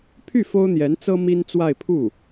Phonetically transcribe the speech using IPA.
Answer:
pʰ y˥˩ f o˥ ʊ̯ n̪ j ɛ˧˥ n t͡s ɤ˥ m i˥ n t͡s w a˥˧ ɪ̯ pʰ u˥˩

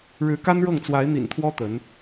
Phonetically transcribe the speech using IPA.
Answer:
ɻ ɻ̩˧˥ k a˥ n ɻ ɤ˥˩ ŋ t͡s w a˧˥ ɪ̯ n̪ ḭ˨˩ n t̪ʰ w ɔ˥ t̪ ə˧˥ n

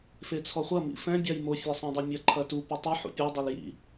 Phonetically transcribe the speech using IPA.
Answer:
f e t͡sʰ ɔ χʷ ɐ m ḭ f ɛ̃ bʲ a j m o fʲ ɛ sˤ ɛ̃ dˤ ɘ mʲ ɐ ǃʰ ɐ t u p a tˤ ɘ ħ ṵ pʲ o dˤ e l j ḭ

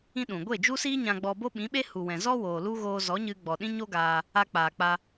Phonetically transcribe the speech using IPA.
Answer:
ĩ˦ ɗ ũ˨ ɡʷ e˦˨ d͡ʒ u˦ s iː˦ ɲ ã˧ ɡ͡b ɔ˧ b o˦ ɓ ĩ˨˦ ɓ e˦ h u˨ w ɛ̃˨ z ɔ˦ w oː˨ l u˦ ɣ oː˧ z ɔ˨˦ ɲ ɨ˧ ɡ͡b ɔ˨ ɗ ĩ˦ ɲ o˦ ɡ aː˧ | a˧ k͡p aː˨ k͡p a˧

